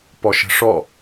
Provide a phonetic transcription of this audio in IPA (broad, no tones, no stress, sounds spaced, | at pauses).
p ɔ ʃ ə̤ ʂ ɔ